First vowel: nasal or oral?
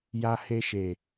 oral